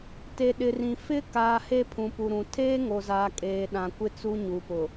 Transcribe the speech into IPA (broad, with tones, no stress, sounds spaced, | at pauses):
t e˨ ɗ ɪ˨ r ĩ˨ f ɪ˦ k aː˨ h e˦ pʰ ũ˨ p u˨ ɾ ũ˨ tʰ eː˦ ŋ o˨ z aː˨ kʼ eː˨ ɗ ã˨ kʷ ɪ˦ t͡s u˦ ɲ u˨ p ʊ˨